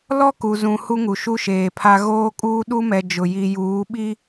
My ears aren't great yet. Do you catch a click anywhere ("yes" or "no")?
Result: no